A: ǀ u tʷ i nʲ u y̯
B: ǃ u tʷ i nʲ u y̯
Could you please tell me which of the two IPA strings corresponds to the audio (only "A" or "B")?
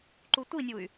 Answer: B